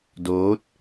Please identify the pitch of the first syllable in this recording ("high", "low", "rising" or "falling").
rising